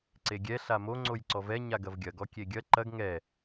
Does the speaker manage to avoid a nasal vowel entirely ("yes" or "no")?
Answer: yes